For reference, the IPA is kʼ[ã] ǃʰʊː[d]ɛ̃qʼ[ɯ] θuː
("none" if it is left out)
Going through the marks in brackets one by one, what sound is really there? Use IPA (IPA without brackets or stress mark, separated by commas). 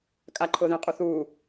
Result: a, ð, u